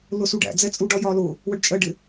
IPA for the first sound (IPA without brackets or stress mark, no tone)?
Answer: l